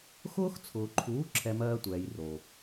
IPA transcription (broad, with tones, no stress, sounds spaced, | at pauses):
x ʊː˦ x t͡sʰ ʊː˨ ǃʰ uː˨˦ ǁʰ ɛ˨ m ɜː˧ tʷ ɛː˨ j r o˨